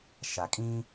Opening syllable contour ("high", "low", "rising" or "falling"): low